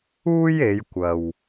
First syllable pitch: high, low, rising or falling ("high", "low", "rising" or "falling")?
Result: high